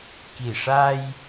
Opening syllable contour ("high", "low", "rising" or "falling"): low